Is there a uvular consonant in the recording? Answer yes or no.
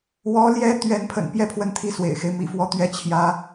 no